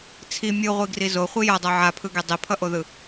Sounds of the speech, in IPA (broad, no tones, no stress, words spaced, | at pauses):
t͡sʰi mʲɯʁʷiɡri zoχʷi jʌdˤo ʕapʰɯɡe dˤipʰʌʔoðɯ